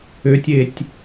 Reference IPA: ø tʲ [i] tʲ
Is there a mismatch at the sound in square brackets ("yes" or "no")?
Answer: yes